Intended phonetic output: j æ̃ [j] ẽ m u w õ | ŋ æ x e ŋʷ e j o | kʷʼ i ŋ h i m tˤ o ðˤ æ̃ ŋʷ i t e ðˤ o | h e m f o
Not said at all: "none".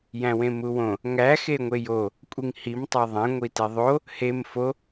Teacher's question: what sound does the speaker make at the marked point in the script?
w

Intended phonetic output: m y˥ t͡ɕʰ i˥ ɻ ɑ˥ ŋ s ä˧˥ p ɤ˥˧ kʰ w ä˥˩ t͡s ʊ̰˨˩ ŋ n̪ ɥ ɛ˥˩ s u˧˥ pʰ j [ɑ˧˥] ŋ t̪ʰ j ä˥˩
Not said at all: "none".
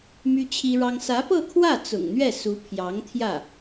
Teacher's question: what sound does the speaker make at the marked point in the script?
ɑ˧˥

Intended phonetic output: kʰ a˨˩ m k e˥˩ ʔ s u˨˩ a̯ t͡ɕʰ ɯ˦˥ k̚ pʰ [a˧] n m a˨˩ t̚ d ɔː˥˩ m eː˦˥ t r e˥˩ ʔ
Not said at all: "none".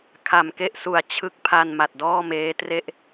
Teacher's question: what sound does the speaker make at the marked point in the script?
a˧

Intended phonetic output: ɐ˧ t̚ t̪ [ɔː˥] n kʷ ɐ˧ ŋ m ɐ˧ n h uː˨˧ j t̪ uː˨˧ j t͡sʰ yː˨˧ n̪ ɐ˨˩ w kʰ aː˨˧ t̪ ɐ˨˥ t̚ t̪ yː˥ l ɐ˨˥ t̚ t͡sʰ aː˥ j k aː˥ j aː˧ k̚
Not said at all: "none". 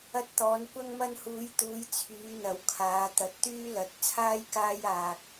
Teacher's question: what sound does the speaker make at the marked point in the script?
ɔː˨˧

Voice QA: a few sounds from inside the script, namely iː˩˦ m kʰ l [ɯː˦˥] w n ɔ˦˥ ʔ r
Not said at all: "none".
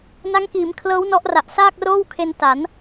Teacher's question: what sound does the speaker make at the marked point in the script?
ɤː˦˥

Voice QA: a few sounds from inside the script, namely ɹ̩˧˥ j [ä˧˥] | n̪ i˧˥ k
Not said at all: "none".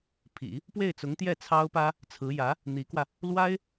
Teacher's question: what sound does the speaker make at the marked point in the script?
ä˧˥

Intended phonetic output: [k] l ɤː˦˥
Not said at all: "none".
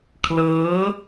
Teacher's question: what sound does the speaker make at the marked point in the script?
kʰ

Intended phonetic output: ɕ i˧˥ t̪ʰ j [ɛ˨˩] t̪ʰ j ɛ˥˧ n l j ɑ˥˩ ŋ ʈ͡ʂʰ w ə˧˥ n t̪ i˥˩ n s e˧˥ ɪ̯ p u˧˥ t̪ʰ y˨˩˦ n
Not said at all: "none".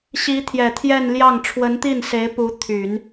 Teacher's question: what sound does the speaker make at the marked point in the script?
ɛ˨˩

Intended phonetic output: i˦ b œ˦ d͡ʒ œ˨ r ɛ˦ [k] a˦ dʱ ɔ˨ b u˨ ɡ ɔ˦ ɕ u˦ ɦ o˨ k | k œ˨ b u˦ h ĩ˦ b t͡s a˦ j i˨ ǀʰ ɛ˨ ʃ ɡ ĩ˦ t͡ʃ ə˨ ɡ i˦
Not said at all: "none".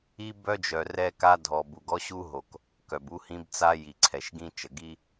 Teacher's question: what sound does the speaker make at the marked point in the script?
k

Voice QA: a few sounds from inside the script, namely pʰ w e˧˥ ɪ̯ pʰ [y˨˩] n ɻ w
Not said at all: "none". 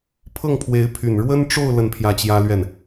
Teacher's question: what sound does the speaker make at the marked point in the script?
y˨˩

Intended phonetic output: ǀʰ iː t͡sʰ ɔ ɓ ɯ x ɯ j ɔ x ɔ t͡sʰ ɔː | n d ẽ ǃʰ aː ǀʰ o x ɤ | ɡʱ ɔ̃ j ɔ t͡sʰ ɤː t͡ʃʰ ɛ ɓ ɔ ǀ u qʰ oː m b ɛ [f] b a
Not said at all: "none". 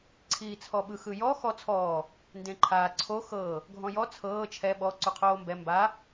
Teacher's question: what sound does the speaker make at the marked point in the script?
m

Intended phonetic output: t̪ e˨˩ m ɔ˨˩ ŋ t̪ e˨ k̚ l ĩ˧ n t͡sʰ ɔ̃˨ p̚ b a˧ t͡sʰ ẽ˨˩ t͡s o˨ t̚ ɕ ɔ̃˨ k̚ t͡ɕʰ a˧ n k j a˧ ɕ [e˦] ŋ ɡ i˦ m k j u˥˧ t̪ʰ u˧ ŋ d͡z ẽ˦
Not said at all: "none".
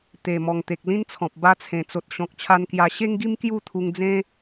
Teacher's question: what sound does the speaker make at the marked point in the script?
e˦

